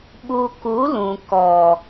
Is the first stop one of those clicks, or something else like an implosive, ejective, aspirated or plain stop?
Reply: implosive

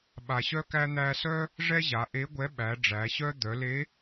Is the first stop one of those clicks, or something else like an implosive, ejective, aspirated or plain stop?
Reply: implosive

